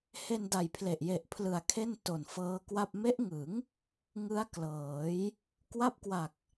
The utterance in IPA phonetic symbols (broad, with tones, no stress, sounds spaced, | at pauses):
h e˧ n d a˨˩ j pʰ l e˨˩ ʔ j e˨˩ ʔ pʰ l ɯ˨˩ a̯ kʰ e˥˩ n t o˨˩ n f ɤː˦˥ k w a˥˩ p̚ m e˦˥ ʔ ŋ ɯ˩˦ ŋ | ŋ ɯ˦˥ a̯ k l ɤː˩˦ j | k w a˦˥ p̚ k w a˨˩ k̚